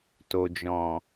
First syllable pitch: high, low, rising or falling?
low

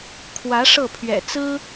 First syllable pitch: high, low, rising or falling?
rising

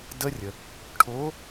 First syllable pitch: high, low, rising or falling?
high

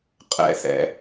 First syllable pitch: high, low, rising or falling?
high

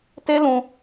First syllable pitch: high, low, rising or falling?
high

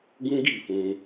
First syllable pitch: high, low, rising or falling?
high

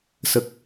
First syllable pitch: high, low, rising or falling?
low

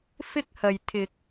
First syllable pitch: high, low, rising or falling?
high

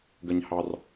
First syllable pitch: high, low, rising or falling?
high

